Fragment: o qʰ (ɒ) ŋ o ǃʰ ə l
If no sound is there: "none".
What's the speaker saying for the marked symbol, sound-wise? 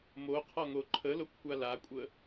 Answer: ɒ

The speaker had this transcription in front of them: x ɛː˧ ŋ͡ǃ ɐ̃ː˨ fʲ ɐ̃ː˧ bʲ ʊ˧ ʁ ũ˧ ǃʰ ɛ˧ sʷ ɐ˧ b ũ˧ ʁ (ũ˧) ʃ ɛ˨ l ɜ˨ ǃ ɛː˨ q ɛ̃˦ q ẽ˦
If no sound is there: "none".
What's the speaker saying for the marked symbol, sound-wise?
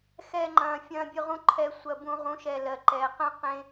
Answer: ũ˨˦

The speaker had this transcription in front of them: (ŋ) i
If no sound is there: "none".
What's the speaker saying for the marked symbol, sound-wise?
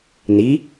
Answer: n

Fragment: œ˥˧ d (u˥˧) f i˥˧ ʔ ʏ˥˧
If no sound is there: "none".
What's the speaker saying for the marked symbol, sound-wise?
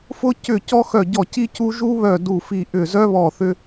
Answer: u˥˧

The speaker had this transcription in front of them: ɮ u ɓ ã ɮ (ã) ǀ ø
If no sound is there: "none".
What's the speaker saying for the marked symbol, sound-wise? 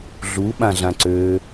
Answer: ã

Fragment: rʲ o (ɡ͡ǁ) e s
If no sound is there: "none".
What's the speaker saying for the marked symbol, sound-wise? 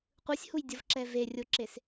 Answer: ǁ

